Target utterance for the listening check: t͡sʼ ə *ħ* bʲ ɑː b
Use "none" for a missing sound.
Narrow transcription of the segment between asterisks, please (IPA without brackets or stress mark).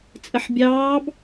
ħ